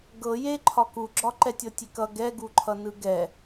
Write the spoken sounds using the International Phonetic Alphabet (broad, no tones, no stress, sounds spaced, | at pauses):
ɡ ɤ j e ǃʰ ɒ k u ɡ͡ǁ ɒ ǃ ɛ tʲ ɤ tʲ e k ʌ ɡ ɛ ɡ u ǃʰ ʌ n ɯ ɡ ɛ